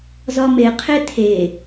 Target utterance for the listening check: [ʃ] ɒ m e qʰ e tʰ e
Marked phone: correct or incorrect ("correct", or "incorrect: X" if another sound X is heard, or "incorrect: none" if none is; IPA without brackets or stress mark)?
incorrect: z